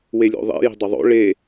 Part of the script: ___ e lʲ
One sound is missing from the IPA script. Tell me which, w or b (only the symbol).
w